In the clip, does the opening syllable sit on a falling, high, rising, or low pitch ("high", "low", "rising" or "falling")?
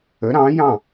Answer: rising